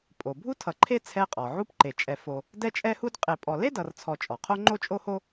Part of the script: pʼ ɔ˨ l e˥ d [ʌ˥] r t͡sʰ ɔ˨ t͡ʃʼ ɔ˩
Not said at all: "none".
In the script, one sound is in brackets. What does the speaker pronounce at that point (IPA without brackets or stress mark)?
ʌ˨